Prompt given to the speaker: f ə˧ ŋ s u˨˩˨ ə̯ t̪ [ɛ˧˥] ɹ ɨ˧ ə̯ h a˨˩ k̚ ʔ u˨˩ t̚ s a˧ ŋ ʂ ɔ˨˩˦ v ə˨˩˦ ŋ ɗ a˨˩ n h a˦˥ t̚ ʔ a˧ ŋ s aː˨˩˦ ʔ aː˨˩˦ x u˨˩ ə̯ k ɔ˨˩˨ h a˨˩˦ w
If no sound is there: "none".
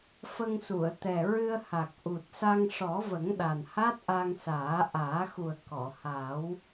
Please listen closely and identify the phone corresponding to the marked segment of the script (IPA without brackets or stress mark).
ɛ˨˩